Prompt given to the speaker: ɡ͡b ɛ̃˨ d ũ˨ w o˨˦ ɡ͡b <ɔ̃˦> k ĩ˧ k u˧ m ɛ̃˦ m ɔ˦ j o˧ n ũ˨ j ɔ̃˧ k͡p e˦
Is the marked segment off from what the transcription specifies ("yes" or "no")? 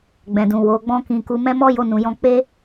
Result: no